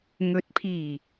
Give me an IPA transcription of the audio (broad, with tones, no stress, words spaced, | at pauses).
ŋɵ˨˥t̚pʰiː˨˩